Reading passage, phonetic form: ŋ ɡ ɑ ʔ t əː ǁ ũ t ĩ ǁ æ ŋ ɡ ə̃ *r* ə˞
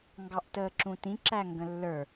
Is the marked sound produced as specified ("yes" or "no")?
no